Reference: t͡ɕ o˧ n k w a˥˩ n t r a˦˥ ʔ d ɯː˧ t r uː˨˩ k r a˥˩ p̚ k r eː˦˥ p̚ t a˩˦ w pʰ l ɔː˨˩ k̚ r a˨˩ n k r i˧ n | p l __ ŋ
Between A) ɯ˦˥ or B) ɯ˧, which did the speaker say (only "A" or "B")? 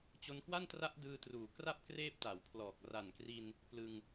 B